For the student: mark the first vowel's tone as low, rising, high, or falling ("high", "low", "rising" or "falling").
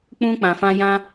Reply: high